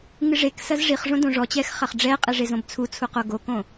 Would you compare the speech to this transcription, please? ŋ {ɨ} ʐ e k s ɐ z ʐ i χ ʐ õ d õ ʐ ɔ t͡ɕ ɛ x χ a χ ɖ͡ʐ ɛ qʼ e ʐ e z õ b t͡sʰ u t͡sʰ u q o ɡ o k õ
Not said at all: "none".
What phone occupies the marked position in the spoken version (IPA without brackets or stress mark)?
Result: ɨ